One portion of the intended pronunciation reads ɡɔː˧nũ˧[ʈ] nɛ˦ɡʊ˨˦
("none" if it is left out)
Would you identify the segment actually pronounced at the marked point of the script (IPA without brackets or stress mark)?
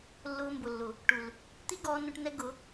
ʈ